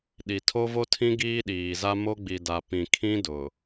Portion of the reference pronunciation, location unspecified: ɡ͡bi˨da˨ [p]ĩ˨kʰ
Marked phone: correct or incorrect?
correct